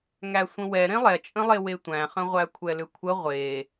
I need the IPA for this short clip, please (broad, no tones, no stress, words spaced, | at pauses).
ŋæsʷə̃wɛɾẽ lˠɛt͡ʃʼə̃lˠe wetʷæ̃χə̃ʁʷæ kʷʰɛlʏkʷʰə ʁʷe